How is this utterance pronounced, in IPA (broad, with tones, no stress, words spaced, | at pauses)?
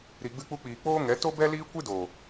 ɾi˨ ɡ͡bɨ˧k͡pu˧k͡piː˨ k͡poː˦ŋɛ˨˦ to˦bɛ˦ liː˦kʷɨ˦do˨